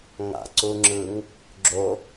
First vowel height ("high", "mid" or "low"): low